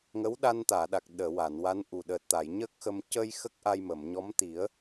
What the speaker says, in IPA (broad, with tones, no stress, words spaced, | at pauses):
ŋə˧˥wɗa˧nt̪aː˨˩˨ɗa˨˩k̚ ɗəː˨˩˨ wa˨˩˨nwa˧˥nʔu˨˩ ɗəː˨˩t̚t̪a˨˩˨jɲə˦˥k̚xə˧m cə˧j xə˦˥k̚ʔa˧jmə˨˩˨mɲɔ˧˥m t̪i˨˩˦ə̯